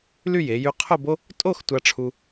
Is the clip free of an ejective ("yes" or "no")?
no